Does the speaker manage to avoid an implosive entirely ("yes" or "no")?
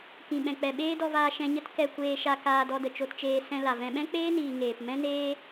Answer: no